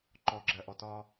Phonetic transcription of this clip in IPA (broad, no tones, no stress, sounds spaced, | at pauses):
ǃ ɔ ɡ͡ǁ ɜ ʔ ɔ t ɒ